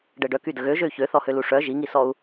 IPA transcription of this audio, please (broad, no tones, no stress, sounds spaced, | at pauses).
ɖ ɛ ɖ œ k y d ə ɣ ø ʒ ø y̯ ç ø θ ɔ h ø l u ʂ œ ʒ i ŋ i s ɔ u̯